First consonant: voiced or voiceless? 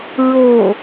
voiced